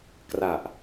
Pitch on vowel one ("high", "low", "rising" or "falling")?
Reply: low